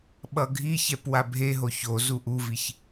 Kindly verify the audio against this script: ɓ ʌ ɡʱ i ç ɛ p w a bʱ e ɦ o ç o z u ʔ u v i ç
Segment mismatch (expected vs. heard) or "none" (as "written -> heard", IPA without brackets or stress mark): none